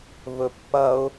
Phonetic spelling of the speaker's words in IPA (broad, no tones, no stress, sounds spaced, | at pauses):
v ɵ pː ɐ ʊ̯